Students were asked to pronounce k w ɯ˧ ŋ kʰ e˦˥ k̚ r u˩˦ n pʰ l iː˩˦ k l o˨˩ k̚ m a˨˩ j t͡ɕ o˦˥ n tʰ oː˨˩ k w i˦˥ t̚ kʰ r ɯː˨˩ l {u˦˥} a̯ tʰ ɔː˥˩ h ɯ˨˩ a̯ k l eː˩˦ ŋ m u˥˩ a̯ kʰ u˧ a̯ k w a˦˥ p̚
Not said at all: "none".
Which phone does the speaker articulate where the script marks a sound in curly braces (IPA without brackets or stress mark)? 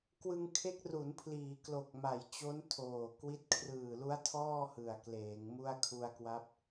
u˦˥